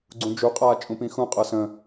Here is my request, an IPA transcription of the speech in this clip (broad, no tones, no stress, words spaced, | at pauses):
ɡ͡ǀũd͡ʒuqʼaː t͡ʃʼũpĩxũqʼɤːs ə̃